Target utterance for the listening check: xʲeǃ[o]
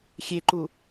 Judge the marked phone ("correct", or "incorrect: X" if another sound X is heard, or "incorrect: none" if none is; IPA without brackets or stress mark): incorrect: u